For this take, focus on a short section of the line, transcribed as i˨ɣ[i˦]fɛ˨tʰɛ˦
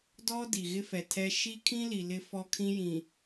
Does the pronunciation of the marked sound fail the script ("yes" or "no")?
yes